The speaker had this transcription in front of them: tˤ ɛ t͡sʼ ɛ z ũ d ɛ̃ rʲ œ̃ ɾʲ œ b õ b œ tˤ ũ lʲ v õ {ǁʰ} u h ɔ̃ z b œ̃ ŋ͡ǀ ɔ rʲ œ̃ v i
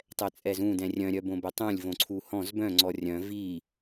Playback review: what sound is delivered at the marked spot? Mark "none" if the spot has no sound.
ǀʰ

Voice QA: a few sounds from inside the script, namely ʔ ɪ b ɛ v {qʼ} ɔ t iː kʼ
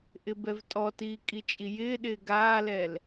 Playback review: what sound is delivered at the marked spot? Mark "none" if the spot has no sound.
tʼ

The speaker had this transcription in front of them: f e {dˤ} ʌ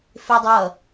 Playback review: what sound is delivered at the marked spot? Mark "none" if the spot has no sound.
dˤ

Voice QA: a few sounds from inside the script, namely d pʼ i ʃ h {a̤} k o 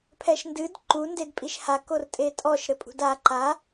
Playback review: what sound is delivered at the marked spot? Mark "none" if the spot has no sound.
a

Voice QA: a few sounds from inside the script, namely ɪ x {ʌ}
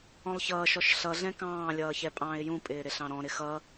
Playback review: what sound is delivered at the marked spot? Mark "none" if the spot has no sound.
ʌ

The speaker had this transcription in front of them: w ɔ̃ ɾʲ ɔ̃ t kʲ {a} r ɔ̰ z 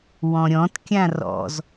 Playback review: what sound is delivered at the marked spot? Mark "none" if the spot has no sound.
ã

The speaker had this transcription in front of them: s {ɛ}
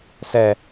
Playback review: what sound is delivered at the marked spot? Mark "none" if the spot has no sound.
ɛ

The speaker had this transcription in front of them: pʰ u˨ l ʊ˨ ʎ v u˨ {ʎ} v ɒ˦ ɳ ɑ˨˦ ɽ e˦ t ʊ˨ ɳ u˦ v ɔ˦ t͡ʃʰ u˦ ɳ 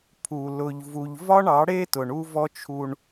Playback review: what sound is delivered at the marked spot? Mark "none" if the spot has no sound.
ʎ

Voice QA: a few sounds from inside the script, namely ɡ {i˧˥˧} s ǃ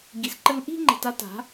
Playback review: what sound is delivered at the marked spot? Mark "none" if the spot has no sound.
i˩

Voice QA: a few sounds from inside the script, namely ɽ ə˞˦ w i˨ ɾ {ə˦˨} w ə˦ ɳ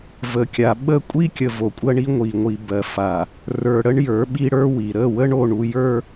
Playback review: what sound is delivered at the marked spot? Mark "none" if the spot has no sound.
ə˦˨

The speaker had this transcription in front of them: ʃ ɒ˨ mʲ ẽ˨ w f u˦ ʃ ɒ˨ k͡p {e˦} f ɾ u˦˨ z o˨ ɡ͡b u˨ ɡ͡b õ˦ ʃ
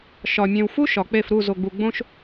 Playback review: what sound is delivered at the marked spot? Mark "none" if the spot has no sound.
e˦˨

